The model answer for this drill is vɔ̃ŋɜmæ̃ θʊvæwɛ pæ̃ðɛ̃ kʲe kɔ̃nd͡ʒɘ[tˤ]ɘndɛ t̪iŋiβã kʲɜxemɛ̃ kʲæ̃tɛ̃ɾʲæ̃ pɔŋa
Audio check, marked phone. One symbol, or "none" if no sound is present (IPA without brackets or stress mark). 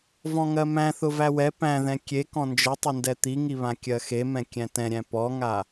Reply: tˤ